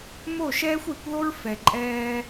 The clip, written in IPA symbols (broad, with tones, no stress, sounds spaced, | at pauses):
m o˦˨ ʃ ɛː˦ xʷ e˨˦ kʷ ð o˦ ɹ f ɛ˨ ǃʼ ɛː˦